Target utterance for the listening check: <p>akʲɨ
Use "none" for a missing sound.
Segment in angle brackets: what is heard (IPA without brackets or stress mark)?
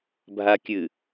bʱ